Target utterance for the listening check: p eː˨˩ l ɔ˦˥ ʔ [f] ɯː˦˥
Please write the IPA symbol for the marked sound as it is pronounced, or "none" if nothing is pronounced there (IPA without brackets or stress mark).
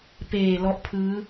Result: pʰ